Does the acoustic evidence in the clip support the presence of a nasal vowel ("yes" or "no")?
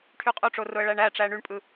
no